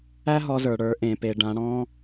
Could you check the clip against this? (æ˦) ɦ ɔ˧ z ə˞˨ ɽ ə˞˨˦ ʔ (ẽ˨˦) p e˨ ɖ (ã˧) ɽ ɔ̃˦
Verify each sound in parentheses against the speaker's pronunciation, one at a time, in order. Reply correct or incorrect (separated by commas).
correct, incorrect, correct